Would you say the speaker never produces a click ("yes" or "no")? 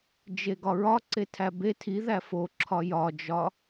no